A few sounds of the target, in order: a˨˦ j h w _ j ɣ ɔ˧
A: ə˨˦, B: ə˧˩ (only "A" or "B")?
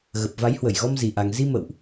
B